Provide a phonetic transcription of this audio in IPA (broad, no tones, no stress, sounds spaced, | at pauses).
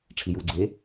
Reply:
ʈ͡ʂʰ i j u ɡ͡ǀ e